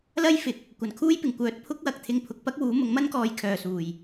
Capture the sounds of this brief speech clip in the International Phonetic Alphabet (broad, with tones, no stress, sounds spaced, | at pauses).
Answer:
l ɐ˥ j f ɪ˨˥ k̚ | kʷ ɐ˨˩ n kʰ uː˥ j p ɪ˨˩ ŋ kʷ œː˨˥ t̚ pʰ ʊ˥ k̚ w ɐ˨ k̚ t̪ʰ ɪ˧ ŋ pʰ ʊ˨˥ k̚ p ɐ˥ k̚ w uː˨˥ m ʊ˨˥ ŋ m ɐ˥ n k ɔː˨ j kʰ œː˨˩ s uː˨˩ j